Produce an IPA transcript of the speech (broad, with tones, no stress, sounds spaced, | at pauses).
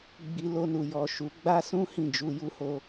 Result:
ɡ͡b i˧ l o˧ n u˨ j ɔ˨ ʃ u˨˦ ɡ͡b a˦ s ũ˦ h ĩ˦˨ d͡ʒ u˧ j u˦ h o˦